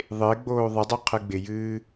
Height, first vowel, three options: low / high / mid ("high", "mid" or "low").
high